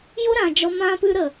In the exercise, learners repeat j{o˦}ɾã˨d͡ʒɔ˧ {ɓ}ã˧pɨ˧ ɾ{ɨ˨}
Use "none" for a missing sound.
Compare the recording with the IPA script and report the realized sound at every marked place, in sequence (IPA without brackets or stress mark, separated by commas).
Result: o˦, m, ə˨